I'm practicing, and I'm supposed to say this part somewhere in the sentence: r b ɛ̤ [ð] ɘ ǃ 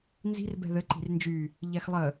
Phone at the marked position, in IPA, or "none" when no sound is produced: ð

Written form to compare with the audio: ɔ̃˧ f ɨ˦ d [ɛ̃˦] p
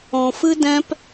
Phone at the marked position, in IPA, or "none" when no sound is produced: ɛ̃˦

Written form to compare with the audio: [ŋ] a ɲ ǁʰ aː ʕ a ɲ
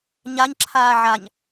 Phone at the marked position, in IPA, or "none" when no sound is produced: ɲ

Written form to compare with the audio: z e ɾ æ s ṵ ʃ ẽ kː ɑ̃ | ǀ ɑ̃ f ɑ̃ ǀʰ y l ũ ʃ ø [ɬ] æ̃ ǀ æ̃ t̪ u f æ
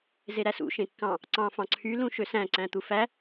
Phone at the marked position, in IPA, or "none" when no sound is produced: s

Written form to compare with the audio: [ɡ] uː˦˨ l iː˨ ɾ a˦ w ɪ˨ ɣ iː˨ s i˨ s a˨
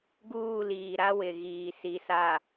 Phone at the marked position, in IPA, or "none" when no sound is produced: ɡ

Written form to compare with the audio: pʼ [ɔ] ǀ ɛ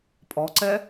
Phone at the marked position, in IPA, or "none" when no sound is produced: ɔ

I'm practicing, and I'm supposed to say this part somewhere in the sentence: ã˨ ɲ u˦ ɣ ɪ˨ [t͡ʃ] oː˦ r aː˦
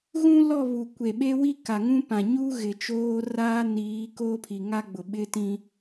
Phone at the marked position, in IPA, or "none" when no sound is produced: t͡ʃ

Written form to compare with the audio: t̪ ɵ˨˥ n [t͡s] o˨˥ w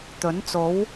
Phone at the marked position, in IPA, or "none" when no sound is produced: t͡s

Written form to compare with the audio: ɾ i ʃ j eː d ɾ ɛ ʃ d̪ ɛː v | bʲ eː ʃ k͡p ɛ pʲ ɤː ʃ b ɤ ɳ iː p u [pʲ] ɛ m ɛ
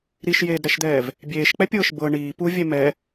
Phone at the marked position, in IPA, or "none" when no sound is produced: vʲ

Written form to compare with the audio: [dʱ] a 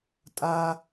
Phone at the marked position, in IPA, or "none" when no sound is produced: tʼ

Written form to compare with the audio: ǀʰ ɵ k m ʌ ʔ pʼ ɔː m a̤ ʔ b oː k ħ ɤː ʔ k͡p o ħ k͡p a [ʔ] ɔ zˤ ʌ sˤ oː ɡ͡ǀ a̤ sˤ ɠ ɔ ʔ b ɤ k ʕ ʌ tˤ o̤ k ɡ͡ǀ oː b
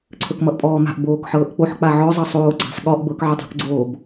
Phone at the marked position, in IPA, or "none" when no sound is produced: ʕ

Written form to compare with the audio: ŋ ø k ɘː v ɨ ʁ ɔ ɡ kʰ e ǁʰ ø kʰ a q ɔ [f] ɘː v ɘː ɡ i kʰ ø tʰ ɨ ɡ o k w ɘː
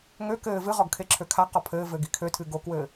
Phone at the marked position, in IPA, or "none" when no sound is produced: pʰ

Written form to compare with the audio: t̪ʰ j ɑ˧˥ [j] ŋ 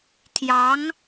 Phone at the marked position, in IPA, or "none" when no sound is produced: none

